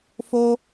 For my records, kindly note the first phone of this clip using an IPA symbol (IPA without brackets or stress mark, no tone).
f